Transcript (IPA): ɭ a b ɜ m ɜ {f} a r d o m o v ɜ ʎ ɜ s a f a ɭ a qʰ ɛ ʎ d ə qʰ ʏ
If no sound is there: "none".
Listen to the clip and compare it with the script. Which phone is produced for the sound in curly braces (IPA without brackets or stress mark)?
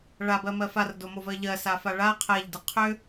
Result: f